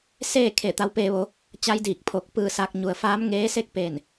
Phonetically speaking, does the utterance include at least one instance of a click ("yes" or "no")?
no